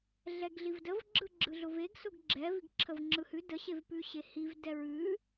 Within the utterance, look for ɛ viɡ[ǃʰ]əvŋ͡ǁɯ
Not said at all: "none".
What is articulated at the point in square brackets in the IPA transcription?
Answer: ǁʰ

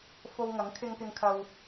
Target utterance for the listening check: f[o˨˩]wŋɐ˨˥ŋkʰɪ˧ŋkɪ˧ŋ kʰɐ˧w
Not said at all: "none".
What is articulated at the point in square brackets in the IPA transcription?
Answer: o˧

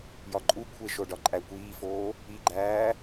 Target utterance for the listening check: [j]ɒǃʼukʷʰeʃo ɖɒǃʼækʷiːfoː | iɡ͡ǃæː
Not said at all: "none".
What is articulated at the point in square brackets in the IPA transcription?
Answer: j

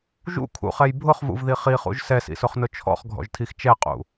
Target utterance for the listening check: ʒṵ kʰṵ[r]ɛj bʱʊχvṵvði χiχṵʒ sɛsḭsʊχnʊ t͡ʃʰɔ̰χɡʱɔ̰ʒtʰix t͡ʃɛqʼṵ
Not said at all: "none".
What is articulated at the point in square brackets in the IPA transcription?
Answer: χ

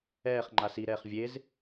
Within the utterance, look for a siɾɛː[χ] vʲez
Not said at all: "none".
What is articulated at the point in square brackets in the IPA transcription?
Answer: χ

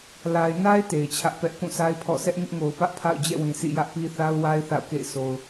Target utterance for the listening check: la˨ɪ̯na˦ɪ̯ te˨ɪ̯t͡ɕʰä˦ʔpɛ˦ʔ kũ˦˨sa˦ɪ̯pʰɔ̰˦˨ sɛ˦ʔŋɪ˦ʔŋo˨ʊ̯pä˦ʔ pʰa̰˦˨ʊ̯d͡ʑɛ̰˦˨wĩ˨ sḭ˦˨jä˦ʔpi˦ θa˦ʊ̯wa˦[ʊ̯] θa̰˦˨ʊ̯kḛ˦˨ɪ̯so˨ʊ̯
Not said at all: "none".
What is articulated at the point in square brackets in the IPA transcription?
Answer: ɪ̯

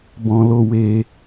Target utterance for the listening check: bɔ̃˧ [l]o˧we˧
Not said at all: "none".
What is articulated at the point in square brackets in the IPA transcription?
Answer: l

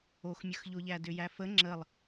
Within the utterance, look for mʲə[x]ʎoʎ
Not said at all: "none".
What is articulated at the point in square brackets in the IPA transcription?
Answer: x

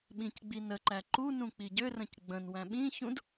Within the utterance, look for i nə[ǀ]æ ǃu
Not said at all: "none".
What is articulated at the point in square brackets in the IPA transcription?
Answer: ǃ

